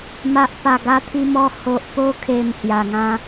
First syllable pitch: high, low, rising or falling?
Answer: low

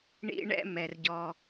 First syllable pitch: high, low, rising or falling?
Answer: high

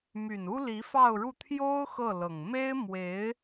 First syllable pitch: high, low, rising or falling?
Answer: low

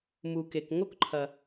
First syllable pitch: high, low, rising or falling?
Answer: low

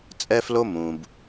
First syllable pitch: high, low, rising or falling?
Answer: high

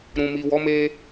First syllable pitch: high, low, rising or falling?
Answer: low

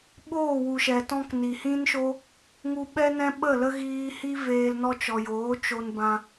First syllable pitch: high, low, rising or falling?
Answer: falling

